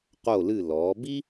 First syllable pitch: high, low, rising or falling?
falling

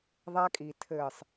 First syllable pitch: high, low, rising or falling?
high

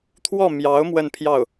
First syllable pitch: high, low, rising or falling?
falling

